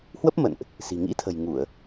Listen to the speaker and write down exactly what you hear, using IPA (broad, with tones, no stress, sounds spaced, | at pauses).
h w ə˦˥ p̚ m ə̰˧˨ n ʔ | s i̤˨˩ ŋ ḭ˧˥ t̪ʰ ə̤˨˩ j ŋ u˧˩˨ ə̯